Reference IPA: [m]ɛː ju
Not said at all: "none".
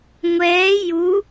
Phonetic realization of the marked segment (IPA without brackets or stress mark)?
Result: ŋʷ